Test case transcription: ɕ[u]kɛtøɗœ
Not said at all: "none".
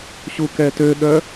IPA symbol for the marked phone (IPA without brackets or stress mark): u